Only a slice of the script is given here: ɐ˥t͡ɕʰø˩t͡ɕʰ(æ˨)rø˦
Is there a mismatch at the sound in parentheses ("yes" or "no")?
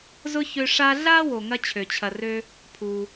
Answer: yes